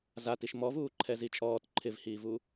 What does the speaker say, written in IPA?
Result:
zatiʃ mɔvuːǃʰɛ zit͡ʃʼɔːt ǃʰɪvhiːvuː

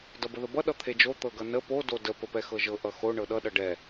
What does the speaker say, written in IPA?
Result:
dʌbəðəbʌ ɗʌt̪ʰed͡ʒo t̪ɤɡʌnə po dodə pəpɛxɤʒɤ ʔʌxo ɳɤɗʌ ɗʌɖɛ

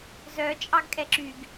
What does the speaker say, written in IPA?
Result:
zœ t͡ʃʼɑɡkʼɛǁyɡ

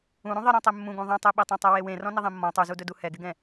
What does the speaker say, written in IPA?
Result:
ũɾũ ðˤɪɾɔ̃ tˤemːũɡũ ðˤẽtˤeɓetˤẽ tˤɛwewẽ rɔ̃nɪðˤẽmːɔ̃ tˤuzudɵdu hɛɡɪɡɛ̃

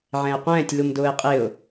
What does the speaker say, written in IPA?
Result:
ʕɛ̃ɪ̯qʷɛ̃ːtʲ lumdʊːɪ̯qʼɪʊ̯

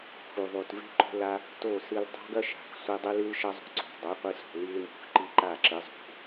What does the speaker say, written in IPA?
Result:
xu˨ðˤu˨t ve̤˦ǃo̤˧la˧ | to˦˨sɨ˧l dˤa̤˦ɡɐ˦ʃa̤˨x sʷi˧dˤɨ˦lɨ˦lʃɐ˦ zˤṳ˨ǀo̤˨dˤo˨˦ qʷɨ˧so̤˨li˧lmṳ˨x ǃi˦ǃa˦˨ǁɨ˨˦ zˤṳ˨˦

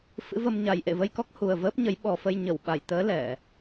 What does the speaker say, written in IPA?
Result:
fɨ̰˧˥və˧m ɲa˨˩jʔḛ˧˨və˧jkɔ˦˥k̚ hu˨˩ə̯vəː˦˥p̚ɲə˨˦j ɓɔ˨˩fə˧j ɲə˧˩wɓa˧˩jt̪əː˨˦ lɛ˧˩˨

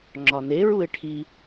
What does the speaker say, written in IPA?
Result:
ŋ͡ǁɒne ɹuɪ̯ʈʰi

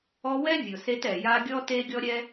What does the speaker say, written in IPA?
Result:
ɔ˦wɛ˥ vʲʊ˩se˦tɛ˩ ja˦ɡʲɔ˥ te˥ɡʲɔ˥ɾʲɛ˥

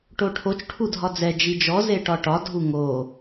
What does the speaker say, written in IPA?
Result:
ʈoʈʰot͡ʃ ʈʰudʱɒd͡zɛ d͡ʒid͡ʒɔ zeʈɒʈɒ dʱuŋo

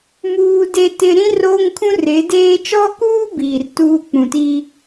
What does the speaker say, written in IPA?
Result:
muː˦de˦tɪ˦ ɾĩ˦ roː˦ŋkʰũ˦re˨˦deː˦ t͡ʃɔ˦kuː˦ biː˨rtuː˦k͡pũ˨ti˦

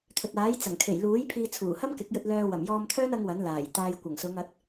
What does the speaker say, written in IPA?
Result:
t̪ʰɵ˨t̚aː˨˥jt͡sɐ˨˩ŋ kʰe˨˩jluː˨˥j pʰiː˧t͡sʰuː˨˩hɐ˥m kɪ˨˥k̚jɵ˧t̚lœː˧ wɐ˨˩mjɔː˧mt̪ʰœː˥n ɐ˥ŋwɐ˨˥n laː˨˩jt̪aː˧j kʷɐ˨˩ŋsʊ˨˧ŋɐ˨˥t̚

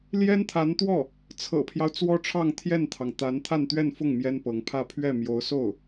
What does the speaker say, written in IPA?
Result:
ljɛ˥nt̪ʰa˧˥nt̪wɔ˥˩ | t͡sʰɤ̰˨˩pʰjɑ˦ʊ̯ t͡swɔ˥ʈ͡ʂʰɑ˥˧ŋ t̪ʰjɛ˥˩nt̪ʰɑ˩ŋ t̪a˧˥n t̪ʰa˥˧nt̪ɥɛ˥˧n fʊ˥˩ŋ mjɛ˥npɤ˧˥ŋpʰä˥˧ pʰɥɛ˥˩ mjo˧˥ʊ̯so˥˩ʊ̯

